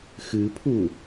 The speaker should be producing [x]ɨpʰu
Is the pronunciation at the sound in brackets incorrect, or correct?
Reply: correct